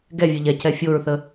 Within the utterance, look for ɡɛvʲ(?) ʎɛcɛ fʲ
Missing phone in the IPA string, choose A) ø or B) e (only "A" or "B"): A